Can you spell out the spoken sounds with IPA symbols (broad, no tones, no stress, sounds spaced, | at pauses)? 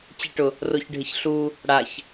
t͡ɕ e ʈ ʊ | r o ç ɖʱ ɪ ç ɬ u | ɽ a ç